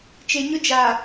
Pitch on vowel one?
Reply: low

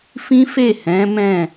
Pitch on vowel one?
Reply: high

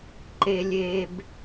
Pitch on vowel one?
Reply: high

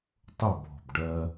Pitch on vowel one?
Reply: falling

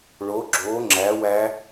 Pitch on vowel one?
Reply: rising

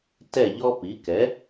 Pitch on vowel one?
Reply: falling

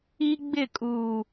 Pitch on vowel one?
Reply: high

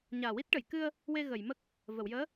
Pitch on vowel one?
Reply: low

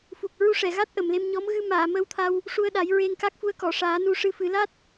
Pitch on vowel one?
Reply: low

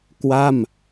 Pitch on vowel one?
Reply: falling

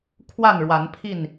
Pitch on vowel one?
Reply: falling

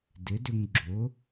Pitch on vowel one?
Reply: rising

